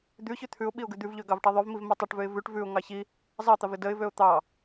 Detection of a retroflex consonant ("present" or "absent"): present